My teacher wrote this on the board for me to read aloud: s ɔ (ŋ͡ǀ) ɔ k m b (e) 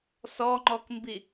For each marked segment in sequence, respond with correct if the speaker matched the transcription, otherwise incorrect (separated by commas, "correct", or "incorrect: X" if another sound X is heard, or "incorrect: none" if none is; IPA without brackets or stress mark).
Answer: incorrect: ŋ͡ǃ, incorrect: i